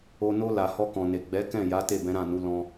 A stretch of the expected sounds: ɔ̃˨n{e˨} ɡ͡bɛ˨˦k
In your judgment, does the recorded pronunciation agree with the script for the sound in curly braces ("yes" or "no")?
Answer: yes